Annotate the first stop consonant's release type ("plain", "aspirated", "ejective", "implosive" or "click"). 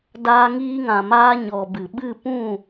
plain